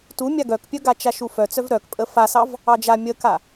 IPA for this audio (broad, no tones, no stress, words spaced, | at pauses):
tumʲa ɡœkpʲœɡa t͡ʃaʃufœt͡sœv ɾœkpʼə fasɑv | ɑd͡ʒa mʲəka